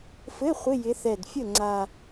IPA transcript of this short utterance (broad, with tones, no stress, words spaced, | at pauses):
fɘ˧˥˧ χʷɪ˧˥˧jɪ˨˦ θɛ˨˩d fʲə˥˩ŋ͡ǀa˨˩